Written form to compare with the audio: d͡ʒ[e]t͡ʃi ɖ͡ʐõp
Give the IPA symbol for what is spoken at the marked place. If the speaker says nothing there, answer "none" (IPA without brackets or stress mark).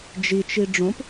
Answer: i